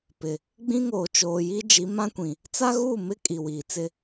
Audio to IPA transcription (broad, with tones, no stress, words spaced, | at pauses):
pɪ˨ | ɡ͡bĩ˦ŋoː˨t͡ʃoː˨ji˦ d͡ʒi˨˦mã˦kʷĩ˨ | t͡sa˦ɣuː˦˨mɪ˦ kʼi˨wiː˨t͡sɪ˦